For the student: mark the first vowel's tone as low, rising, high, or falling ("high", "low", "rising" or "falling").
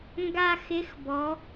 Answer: high